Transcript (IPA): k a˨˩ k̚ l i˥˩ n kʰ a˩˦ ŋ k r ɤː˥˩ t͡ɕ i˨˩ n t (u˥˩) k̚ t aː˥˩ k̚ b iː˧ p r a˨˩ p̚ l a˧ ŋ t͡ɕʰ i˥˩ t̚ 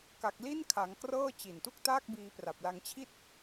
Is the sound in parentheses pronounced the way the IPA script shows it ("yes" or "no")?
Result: yes